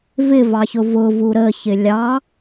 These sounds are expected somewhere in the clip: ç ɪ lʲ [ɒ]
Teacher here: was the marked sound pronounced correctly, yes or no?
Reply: no